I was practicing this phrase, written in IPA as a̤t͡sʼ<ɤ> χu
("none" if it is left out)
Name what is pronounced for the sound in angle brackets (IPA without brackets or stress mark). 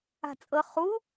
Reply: ɤ